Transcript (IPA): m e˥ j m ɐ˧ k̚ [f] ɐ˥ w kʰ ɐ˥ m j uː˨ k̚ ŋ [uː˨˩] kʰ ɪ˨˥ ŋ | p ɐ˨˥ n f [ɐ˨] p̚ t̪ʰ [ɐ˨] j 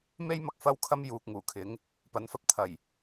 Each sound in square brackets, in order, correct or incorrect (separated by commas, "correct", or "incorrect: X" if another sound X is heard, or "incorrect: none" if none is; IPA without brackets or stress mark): correct, correct, correct, incorrect: ɐ˨˩